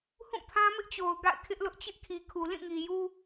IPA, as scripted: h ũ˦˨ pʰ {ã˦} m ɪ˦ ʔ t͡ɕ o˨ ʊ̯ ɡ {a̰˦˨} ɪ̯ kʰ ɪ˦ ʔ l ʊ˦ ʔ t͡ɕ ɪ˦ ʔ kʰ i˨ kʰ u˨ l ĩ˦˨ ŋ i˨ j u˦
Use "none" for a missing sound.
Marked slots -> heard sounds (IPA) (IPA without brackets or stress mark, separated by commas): ã˦, a̰˦˨